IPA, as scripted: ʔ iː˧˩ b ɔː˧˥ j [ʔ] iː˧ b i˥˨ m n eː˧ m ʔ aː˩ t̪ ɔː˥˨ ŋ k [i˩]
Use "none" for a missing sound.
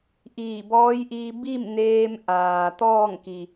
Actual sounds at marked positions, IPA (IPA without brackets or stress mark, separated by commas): ʔ, i˩